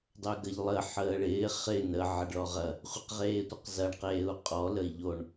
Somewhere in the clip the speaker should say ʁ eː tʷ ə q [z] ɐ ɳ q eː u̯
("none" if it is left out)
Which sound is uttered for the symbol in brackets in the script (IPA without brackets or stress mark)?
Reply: z